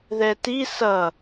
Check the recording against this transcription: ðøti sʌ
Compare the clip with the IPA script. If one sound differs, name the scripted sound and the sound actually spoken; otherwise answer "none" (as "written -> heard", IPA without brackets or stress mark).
ø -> ɛ